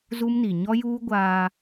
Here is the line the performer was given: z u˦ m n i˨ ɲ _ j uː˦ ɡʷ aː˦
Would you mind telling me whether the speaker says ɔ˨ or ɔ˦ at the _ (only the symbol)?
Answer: ɔ˦